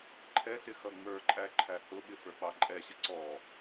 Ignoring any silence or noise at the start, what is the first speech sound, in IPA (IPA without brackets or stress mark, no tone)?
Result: ǃʰ